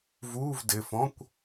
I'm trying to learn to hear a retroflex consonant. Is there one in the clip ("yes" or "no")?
no